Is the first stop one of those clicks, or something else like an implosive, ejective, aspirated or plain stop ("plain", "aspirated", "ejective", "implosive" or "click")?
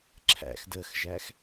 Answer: click